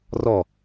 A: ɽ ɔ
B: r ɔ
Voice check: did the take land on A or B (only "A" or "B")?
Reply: B